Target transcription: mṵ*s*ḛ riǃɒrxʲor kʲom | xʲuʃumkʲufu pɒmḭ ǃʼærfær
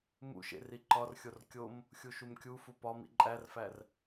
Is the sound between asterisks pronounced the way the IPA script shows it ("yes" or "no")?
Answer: no